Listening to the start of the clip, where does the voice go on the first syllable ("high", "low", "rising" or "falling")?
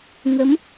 rising